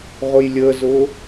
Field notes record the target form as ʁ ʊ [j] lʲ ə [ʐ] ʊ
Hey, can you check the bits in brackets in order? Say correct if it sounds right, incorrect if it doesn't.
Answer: correct, incorrect: z

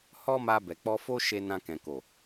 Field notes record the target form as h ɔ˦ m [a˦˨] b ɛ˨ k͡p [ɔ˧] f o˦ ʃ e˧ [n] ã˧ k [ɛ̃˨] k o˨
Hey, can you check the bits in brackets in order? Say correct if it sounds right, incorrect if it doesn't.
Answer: incorrect: a˧, correct, correct, correct

